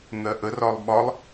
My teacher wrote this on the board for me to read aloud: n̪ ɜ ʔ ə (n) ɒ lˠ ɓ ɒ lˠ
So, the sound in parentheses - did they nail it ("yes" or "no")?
no